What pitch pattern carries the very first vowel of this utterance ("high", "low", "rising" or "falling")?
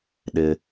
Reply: high